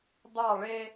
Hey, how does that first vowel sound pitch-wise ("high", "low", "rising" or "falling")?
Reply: falling